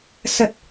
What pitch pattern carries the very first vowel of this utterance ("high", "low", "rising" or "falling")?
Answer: low